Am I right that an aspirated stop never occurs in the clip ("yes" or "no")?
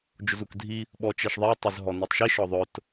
yes